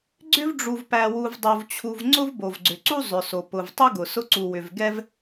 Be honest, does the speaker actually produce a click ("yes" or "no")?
yes